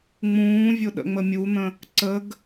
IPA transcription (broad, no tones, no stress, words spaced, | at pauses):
ŋ͡mũːvʲʊ ɗə̰ŋ͡məmʲun̪ə̃ | ǀəɡ